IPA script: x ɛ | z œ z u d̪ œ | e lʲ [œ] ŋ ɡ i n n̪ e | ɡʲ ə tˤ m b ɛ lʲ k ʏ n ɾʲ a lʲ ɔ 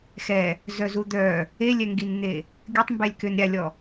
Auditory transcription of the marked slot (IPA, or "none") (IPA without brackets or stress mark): ɛ